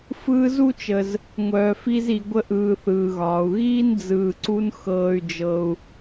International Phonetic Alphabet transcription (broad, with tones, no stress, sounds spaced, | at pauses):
f ɯː˦ z u˥ t͡ʃ ə˨ z | ŋʷ œː˨ f i˦ z i˨ ɡʷ ə˦ ʔ ɯː˨ θ ɯː˩ ɣ ɒː˩ u̯ ɣ iː˥ n d͡z ɯː˨ ǀ u˦ n x ɤː˨ y̯ d͡ʒ ɤ˨ u̯